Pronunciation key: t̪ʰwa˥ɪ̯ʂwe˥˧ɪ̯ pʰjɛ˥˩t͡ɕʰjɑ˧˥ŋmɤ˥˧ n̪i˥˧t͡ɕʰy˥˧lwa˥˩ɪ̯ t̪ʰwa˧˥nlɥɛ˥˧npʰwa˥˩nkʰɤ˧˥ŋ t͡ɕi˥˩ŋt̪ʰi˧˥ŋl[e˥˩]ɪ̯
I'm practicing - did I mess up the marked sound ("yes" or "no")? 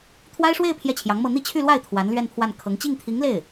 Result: no